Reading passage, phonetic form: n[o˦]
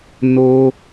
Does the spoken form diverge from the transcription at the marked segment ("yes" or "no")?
no